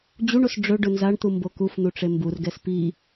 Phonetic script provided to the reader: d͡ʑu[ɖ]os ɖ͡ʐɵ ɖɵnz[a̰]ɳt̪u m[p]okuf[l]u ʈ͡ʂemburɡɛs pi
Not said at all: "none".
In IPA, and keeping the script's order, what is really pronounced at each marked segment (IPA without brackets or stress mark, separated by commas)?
ɳ, a, b, n̪